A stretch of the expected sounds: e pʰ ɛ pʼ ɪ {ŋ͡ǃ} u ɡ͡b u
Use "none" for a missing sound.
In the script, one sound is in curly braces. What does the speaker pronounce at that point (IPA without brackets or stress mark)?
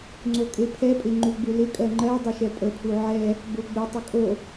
ŋ͡ǃ